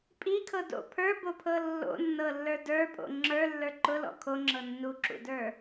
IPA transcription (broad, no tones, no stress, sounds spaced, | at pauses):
pʼ i kʰ ɤ d o̰ pʰ ə˞ b o pʰ ɤ lː o̰ nː ɤ lː ə˞ d ə˞ pʼ o̰ ŋ͡ǁ ə˞ lː ə˞ ǃ ʊ l ɔ̰ kʰ o ŋ͡ǁ ɤ nː u ǁ ṵ d ə˞